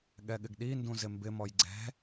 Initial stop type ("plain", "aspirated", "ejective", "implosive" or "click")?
implosive